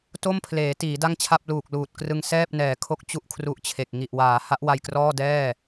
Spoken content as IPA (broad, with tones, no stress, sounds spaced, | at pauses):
t o˥˩ m pʰ l eː˩˦ t iː˩˦ d a˥˩ ŋ t͡ɕʰ a˥˩ p̚ l uː˨˩ k̚ l uː˨˩ t̚ k r ɯ˧ ŋ s ɛː˥˩ p̚ n ɛː˩˦ kʰ o˦˥ k̚ t͡ɕ u˥˩ ʔ kʰ r u˦˥ ʔ t͡ɕʰ e˨˩ k̚ ŋ i˨˩ ʔ w aː˩˦ h a˦˥ ʔ w a˧ j k r ɔː˥˩ d ɛː˥˩